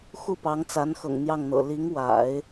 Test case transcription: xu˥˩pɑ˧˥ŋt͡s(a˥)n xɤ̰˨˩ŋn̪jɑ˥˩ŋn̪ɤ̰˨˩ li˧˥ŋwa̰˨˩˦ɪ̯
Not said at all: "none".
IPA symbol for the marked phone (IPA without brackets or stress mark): a˧˥